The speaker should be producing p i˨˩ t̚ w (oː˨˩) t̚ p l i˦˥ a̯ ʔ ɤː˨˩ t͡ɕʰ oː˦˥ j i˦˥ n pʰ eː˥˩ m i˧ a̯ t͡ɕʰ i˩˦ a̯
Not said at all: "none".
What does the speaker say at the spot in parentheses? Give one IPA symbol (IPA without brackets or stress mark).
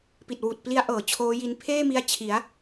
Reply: uː˨˩